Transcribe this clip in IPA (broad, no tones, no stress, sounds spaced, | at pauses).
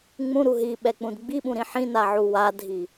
ŋ͡m ũ ɾ u ɦ i ɓ ɛ k͡p ũ d ɡ͡b i ɓ ũ ɾ ĩ ħ ĩ n a ʕ u w a dʱ i